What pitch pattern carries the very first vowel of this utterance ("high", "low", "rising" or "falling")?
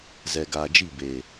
low